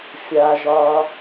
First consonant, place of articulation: labial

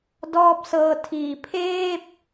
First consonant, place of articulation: alveolar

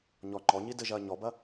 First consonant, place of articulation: palatal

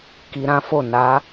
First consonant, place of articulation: velar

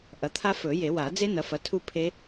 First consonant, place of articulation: glottal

